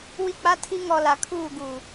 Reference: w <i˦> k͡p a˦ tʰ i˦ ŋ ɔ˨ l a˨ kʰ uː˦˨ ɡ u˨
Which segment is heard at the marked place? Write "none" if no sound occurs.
i˦˨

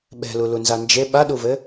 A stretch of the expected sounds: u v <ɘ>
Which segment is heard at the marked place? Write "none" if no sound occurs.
ɘ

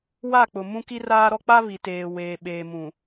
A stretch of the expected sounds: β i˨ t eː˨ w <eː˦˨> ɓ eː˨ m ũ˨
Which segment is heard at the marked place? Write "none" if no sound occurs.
eː˨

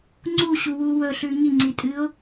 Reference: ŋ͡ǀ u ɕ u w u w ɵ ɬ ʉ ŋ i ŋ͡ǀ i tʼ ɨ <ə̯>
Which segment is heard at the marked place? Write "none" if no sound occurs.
ʊ̯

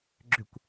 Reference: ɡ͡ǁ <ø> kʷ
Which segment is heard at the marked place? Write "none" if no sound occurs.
ø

